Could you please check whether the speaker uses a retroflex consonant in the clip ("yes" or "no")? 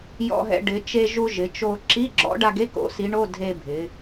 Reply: yes